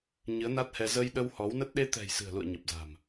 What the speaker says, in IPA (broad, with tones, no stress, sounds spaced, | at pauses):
ɲ ɨ˨˦ ə̯ n a˦˥ t̚ h ɛ˧ z ə˧ j ɗ ə˧ w h ɔ˨˦ w n ə˦˥ t̚ ɗ e˧ t̪ ɛ̤˨˩ j s ɨ̤˨˩ ə̯ l ṵ˧˨ ə̯ ɲ ə˨˩ p̚ z a̤˨˩ m